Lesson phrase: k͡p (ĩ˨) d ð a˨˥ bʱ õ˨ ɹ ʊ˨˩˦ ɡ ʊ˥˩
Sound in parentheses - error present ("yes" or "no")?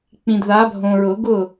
no